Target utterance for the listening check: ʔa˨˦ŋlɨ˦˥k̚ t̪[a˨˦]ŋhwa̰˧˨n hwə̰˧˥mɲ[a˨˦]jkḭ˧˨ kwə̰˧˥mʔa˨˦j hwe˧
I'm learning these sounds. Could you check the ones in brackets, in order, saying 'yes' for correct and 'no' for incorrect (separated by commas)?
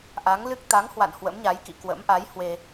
yes, yes